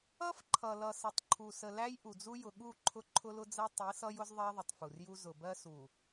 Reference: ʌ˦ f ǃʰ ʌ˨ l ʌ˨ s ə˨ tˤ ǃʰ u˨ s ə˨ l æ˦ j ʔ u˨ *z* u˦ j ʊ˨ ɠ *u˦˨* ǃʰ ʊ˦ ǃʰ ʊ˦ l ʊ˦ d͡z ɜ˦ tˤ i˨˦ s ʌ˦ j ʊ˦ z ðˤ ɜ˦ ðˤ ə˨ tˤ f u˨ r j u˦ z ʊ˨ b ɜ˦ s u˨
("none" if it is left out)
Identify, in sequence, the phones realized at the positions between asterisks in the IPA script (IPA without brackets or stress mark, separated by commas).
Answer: d͡z, u˦˨